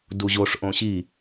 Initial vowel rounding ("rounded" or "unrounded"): rounded